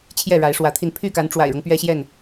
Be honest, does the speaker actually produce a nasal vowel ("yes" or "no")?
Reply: no